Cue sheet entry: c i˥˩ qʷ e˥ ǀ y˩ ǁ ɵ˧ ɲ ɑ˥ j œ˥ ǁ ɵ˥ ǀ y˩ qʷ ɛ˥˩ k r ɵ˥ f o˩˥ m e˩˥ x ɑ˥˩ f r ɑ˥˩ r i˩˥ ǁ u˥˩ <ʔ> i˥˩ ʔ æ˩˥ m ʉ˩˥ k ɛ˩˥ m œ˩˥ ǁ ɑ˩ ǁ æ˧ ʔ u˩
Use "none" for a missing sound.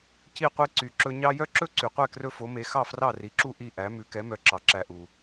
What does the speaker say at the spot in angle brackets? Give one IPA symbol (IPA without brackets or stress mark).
ʔ